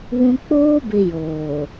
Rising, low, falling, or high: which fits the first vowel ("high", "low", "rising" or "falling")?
high